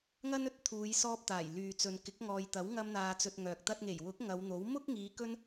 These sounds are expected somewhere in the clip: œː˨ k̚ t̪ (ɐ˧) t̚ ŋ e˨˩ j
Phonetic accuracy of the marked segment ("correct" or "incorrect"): correct